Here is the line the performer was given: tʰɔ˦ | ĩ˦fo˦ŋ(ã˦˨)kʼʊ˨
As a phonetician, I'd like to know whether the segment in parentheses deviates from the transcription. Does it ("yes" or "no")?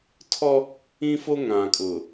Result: yes